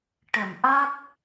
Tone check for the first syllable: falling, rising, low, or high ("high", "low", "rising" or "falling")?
low